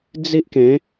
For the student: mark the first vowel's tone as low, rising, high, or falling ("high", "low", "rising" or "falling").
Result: high